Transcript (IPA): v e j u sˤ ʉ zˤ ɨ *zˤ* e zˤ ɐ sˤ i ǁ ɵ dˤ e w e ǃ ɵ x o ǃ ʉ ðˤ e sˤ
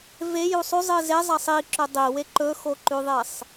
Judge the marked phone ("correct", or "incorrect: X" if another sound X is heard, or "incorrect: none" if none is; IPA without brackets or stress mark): incorrect: z